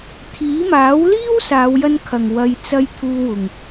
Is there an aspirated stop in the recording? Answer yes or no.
yes